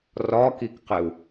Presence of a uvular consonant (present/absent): present